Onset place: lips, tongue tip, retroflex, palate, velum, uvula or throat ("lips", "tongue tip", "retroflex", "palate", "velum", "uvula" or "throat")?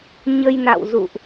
palate